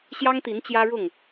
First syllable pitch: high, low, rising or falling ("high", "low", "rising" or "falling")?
high